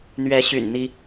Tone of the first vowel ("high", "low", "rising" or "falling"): rising